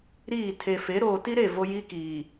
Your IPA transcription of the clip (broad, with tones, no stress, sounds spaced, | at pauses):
ɾ iː˦˨ tʰ e˨ f e˨˦ ɾ oː˨ t i˦ ɾ e˦˨ v o˦ j i˦ k iː˨